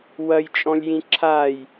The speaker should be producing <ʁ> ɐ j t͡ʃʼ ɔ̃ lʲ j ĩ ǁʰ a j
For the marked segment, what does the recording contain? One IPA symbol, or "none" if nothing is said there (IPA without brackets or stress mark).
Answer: w